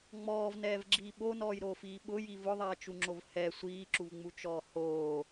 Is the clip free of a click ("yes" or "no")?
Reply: no